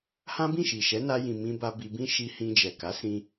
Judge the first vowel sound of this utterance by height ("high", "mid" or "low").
low